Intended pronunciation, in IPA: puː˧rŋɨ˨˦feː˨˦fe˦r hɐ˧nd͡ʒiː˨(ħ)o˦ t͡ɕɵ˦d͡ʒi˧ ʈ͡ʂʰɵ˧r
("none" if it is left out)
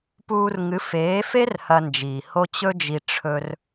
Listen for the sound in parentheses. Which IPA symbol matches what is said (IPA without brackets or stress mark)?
h